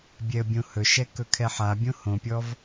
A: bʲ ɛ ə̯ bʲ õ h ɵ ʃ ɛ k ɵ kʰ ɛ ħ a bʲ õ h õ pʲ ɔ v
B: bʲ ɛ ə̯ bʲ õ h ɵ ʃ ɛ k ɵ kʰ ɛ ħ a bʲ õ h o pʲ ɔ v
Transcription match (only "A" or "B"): A